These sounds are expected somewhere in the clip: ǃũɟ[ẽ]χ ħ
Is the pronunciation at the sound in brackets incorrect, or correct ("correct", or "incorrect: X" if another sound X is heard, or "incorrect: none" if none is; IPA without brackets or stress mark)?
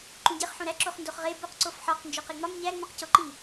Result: incorrect: e